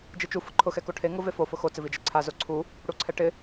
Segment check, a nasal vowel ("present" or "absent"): absent